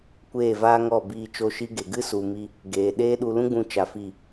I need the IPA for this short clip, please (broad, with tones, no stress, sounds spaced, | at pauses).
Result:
kʷ eː˦˨ v aː˦ ŋ ɔ˦˨ b iː˧ t͡ʃ o˧ ʃ i˧ ɡ e˨ ɡ ɨ˦ s u˧ m i˦ | ɡ eː˨ ɗ eː˦ ɗ u˧ l ũ˦ ɡ͡b ũ˧ t͡ʃ a˧ f i˦˨